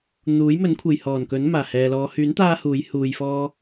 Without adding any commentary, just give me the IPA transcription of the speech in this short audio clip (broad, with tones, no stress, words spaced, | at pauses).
n̪uː˨˥jmɵ˨˥n kʷʰe˨j hɔː˨˩nkɵ˨˥n maː˨˩hɛː˨lɔː˨˧ hyː˨˥nt̪aː˧ huː˨˥jhuː˧jfɔː˥